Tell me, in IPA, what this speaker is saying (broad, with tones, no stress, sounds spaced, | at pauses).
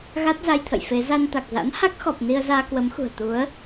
ɣ a˦˥ t̚ z a˧ j t̪ʰ ə̰˧˨ j f e˨˦ z a˧ n t̪ a˨˩ k̚ z a̰˧˥ n h a˦˥ k̚ x ɔ˨˩ p̚ n i˧ ə̯ z aː˧ k w ə˨˦ m x ṳ˨˩ ə̯ t̪ u˨˦ ə̯